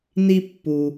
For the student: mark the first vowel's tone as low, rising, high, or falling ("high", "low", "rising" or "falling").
low